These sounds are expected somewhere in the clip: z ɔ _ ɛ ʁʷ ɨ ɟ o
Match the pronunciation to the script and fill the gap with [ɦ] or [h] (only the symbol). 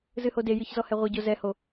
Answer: h